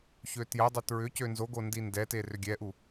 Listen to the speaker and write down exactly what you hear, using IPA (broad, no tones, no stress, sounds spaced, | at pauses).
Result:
ç ø t j ə dˤ ʏ t ɹ ʏ c ø n z o ɡ o n d i n d ɛ t e r ʏ ɡʲ ɛ ʔ u